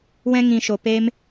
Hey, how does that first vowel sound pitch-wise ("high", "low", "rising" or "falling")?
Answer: high